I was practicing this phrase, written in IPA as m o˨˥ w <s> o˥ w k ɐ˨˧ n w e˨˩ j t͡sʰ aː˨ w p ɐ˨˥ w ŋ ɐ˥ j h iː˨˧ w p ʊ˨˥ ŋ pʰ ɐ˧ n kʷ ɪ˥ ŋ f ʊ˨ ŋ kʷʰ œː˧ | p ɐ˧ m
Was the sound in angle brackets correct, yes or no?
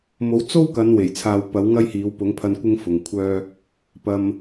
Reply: no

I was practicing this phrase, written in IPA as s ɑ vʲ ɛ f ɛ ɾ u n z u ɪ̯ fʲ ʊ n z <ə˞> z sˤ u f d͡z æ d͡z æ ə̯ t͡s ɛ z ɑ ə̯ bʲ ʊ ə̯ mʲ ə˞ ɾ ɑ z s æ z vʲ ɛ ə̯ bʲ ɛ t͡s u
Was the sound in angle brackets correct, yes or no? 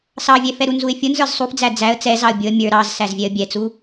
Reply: yes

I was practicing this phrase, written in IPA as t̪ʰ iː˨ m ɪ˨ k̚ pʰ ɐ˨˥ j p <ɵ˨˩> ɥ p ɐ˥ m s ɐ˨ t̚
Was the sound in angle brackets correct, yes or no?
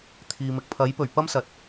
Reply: yes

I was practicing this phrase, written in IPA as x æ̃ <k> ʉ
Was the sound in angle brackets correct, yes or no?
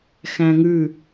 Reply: no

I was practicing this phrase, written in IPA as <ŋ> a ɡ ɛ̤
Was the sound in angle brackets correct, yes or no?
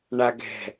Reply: no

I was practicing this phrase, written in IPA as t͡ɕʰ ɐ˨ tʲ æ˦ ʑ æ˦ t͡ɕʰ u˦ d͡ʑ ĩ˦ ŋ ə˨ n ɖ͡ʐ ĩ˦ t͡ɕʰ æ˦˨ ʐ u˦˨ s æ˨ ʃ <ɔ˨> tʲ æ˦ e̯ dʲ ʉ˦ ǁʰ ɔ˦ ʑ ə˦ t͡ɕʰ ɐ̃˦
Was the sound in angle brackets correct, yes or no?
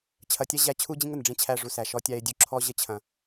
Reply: no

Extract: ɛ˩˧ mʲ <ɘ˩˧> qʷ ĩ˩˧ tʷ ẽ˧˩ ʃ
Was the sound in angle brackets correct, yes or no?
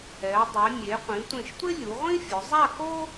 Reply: no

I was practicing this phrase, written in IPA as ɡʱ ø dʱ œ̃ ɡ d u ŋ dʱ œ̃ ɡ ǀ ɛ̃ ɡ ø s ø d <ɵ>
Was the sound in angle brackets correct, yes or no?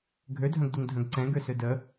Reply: no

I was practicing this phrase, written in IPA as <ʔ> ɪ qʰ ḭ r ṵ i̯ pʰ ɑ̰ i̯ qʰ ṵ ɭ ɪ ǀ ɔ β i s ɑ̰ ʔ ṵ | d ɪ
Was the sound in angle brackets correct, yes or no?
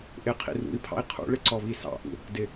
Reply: yes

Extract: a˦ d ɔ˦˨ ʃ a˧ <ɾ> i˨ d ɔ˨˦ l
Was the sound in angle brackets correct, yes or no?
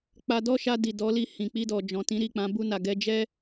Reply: no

